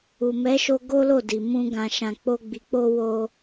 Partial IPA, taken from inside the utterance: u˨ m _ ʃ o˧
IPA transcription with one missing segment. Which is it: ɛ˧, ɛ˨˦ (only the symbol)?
ɛ˨˦